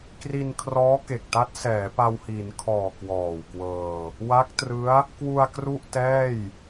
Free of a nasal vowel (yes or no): yes